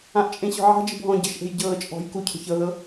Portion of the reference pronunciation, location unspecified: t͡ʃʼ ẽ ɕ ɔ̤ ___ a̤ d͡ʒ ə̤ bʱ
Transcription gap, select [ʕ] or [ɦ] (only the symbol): ʕ